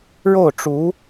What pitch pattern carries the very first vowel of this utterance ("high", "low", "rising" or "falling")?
falling